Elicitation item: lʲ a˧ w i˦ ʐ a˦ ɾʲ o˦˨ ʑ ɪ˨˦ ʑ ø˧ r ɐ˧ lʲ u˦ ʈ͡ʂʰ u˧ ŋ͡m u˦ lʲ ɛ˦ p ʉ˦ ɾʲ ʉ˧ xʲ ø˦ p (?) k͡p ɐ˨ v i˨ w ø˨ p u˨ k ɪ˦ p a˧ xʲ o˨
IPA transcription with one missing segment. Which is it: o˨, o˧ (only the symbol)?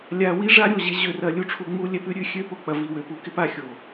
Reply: o˧